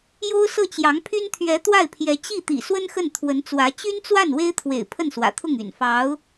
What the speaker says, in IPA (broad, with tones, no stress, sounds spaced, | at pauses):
j o˥ ʊ̯ s ɤ˥˩ t͡ɕ j ɑ˧˥ ŋ pʰ y˥ n t̪ʰ ɥ ɛ˧˥ t̪ w a˥˩ ɪ̯ pʰ j ɛ˧˥ t͡ɕ i˥˩ t̪ ḭ˨˩ s w ə˥ n x ə˥˩ n t̪ʰ w ə˧˥ n t͡s w ä˧˥ t͡ɕ y˥ n t͡s w a˥˩ n w e˥ ɪ̯ t̪ʰ w ḛ˨˩ ɪ̯ pʰ ə˥˩ n s w ä̰˨˩ t̪ʰ ʊ˥˩ ŋ y̰˨˩ n f ɑ˧˥ ʊ̯